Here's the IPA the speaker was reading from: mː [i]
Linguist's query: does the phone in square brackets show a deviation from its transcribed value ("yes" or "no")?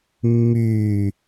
yes